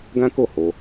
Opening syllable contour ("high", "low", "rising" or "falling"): high